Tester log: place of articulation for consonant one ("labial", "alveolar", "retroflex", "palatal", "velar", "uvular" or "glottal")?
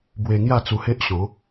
labial